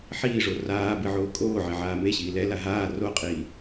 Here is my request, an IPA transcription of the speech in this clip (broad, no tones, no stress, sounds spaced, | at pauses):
ħ iː ʐ o r aː b ɨ ʕ oː kʼ oː ʕ e ʕ aː m e ɕ iː l ɛ l a ɦ aː r o qʼ iː